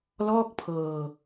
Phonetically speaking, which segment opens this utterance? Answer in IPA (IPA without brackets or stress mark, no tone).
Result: l